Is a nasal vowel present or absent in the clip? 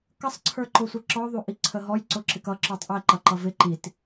absent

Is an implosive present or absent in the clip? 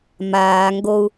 absent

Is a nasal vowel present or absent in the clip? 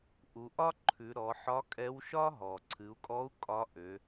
absent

